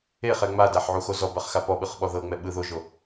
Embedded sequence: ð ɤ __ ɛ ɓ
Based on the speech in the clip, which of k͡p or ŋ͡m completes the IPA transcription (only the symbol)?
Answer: ŋ͡m